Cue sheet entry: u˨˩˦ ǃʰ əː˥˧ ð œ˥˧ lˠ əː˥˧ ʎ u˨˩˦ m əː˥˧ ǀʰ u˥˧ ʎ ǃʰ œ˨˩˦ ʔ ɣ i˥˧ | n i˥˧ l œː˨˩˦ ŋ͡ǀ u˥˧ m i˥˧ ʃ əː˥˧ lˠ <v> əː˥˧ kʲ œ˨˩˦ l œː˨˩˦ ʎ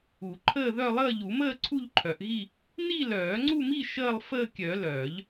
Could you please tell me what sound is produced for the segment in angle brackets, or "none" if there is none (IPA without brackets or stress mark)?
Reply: f